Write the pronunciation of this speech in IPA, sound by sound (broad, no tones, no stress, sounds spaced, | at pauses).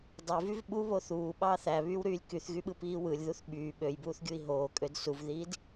dˤ ø v y v ɓ u β o θ uː ɓ ɑː θ æ β yː w ɾ yː lʲ k y θ ɣ y ɓ ɯ p iː w ɯ lʲ ð u θ ɓ yː ɓ ø j b uː θ ɡʲ u i̯ ɦ oː kʼ ø d s u v ð iː d